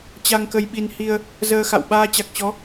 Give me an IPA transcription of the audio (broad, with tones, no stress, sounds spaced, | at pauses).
t͡ɕ a˧ ŋ k ə˧ j ɓ i˧ n h i˧ ə̯ | z əː˧ x a̰˧˨ w ɓ aː˧ t͡ɕ a˨˩ k̚ t͡ɕ ɔ˨˦